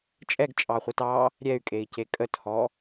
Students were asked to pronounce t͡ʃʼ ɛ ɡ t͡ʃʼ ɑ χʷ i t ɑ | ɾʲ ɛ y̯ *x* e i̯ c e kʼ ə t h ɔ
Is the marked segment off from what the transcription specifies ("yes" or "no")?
yes